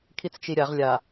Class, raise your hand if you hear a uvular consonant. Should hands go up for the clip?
yes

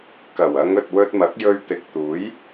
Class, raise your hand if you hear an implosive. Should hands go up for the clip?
no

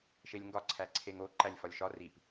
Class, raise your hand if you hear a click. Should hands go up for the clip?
yes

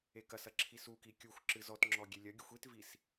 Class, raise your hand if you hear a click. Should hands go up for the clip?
yes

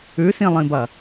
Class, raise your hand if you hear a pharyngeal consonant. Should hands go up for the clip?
no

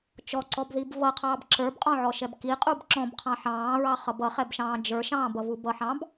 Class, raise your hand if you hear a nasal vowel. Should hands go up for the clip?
yes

